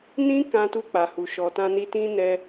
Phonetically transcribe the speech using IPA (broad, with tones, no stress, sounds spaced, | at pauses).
n ĩ˦ k ã˧ t u˧ k͡p a˨ h u˨ ʃ ɔ˨ t ã˧ n i˧ t ĩ˦ n ɛ˧